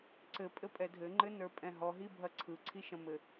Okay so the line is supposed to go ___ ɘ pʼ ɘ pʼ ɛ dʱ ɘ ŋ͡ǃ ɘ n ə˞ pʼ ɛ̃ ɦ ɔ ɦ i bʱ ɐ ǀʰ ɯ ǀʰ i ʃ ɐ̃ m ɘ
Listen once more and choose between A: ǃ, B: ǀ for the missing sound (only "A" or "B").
B